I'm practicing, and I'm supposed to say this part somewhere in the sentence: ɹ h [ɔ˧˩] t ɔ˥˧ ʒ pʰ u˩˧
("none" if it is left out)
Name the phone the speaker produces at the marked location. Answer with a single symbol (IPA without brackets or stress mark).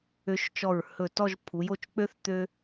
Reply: ɵ˧˩